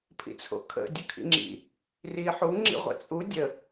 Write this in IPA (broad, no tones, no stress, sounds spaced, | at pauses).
pʰ ḭ t͡sʰ o̰ kʰ ə̰ dʲ ʊ kʰ ḭ ŋ͡ǁ ḭ | r i ħ u ŋ͡ǁ ḭ ʁʷ ə̰ t͡sʼ u dʲ ə